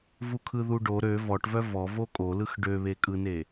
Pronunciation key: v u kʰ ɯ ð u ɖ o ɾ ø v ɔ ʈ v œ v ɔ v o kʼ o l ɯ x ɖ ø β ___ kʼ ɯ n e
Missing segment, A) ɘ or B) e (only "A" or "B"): B